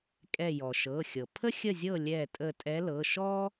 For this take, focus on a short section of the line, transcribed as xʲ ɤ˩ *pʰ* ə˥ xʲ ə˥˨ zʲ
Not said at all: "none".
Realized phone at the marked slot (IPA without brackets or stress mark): pʰ